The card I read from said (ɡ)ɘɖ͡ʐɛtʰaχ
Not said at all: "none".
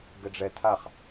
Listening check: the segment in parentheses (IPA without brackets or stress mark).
ɡ